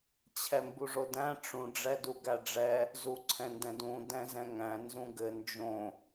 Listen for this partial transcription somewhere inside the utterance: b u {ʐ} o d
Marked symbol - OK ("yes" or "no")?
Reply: yes